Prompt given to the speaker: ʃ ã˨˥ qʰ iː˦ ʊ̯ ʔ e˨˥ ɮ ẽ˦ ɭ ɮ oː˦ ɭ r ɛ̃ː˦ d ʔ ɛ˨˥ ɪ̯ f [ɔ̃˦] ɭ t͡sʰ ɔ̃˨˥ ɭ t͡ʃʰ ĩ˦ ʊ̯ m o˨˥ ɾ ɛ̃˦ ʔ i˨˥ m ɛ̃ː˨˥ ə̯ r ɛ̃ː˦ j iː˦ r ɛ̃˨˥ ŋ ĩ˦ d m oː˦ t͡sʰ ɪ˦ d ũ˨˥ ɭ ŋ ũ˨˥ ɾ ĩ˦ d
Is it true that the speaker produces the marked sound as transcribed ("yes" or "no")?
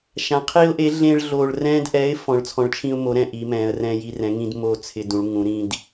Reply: no